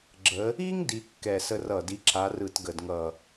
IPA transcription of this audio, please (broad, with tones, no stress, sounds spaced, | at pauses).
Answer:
ɡ͡ǁ ə˧˥ | i˥ ŋ d i˥ kː ɛ˦˨ s ə˥ r ʌ˦˨ d i˧˥ ǁʰ a˧˥ r ɯ˦˨ t ɡ ə˦˨ d ŋ ʌ˦˨